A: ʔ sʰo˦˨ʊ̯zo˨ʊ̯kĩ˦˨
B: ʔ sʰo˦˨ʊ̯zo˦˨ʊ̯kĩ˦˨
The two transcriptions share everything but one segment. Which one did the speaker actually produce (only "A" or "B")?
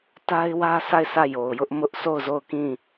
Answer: B